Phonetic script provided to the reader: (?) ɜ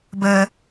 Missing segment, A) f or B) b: B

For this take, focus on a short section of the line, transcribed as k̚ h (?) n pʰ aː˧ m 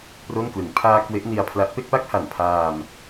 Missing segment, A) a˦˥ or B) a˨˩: B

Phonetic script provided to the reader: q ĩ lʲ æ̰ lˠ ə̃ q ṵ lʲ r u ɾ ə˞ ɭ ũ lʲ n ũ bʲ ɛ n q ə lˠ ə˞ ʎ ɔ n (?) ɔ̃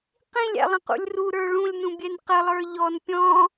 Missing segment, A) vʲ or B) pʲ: B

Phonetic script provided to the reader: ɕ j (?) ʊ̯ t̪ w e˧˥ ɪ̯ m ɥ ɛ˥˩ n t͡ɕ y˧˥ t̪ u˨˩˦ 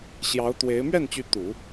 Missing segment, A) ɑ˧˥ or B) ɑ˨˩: A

